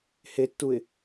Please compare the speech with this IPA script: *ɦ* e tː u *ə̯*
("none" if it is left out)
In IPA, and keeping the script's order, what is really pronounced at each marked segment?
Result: h, ɪ̯

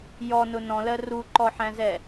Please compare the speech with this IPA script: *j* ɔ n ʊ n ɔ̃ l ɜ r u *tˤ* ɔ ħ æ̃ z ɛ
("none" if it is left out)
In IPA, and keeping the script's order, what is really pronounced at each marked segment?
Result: j, ǃ

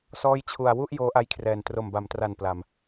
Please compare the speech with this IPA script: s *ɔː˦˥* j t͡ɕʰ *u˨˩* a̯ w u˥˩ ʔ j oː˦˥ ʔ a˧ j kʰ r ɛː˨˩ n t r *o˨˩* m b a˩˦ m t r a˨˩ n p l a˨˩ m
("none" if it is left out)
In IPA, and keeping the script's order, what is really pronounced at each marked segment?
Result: ɔː˦˥, u˨˩, o˨˩

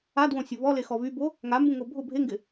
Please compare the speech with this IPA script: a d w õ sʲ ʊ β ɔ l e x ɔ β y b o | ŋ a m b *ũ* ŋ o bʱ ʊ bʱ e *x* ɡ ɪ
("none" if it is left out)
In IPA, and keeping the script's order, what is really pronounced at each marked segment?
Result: ũ, ŋ

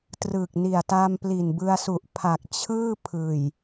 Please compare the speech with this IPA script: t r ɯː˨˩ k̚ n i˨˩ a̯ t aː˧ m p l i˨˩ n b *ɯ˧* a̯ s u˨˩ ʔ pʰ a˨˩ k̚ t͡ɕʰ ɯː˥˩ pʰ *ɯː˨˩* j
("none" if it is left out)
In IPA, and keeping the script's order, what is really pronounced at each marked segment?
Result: ɯ˧, ɯː˨˩

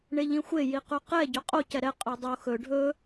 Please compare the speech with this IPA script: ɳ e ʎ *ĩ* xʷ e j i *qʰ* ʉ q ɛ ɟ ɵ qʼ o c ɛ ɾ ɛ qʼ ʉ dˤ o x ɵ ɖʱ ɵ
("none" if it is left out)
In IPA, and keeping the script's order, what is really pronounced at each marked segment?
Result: ĩ, q

